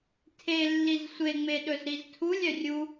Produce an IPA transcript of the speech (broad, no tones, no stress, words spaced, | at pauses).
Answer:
tʰelːiz sʷeŋ͡me ɗɵzɾiztʰulʲœ rʲu